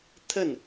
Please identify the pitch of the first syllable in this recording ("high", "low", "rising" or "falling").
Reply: falling